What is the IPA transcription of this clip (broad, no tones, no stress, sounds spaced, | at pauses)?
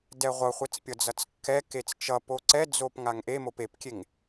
d ɛ ʁʷ ʌ χʷ ɛ t͡s pʲ ʌ d͡z ʌ t͡s kː ɛ k e t͡s t͡ʃ ʌ p o ǀ ɛ d͡z o p ŋ a ŋ ʔ e m o p e p kʲ e ŋ